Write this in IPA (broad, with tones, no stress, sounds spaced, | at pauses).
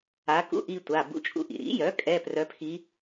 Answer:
a˧˥ k ṵ˧˥˧ ʔ i˧ tʷ a˩˧˩ b ṵ˧˥ t͡ʃʼ ṵ˧˥ ʔ ḭ˩ ɾ ḭ˩˥ j œ˩˥ kʼ ɛ˧˥˧ p r œ˧˥ pʰ i˧˥